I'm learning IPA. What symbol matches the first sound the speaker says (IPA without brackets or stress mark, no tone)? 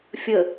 fʲ